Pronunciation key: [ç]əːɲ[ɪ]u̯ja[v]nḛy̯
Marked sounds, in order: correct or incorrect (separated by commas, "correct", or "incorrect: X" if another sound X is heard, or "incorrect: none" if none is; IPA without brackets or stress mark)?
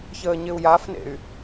correct, correct, incorrect: f